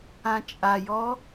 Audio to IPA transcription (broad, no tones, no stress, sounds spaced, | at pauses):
ã t͡ʃʼ a j ɔ